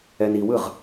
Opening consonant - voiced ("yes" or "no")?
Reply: yes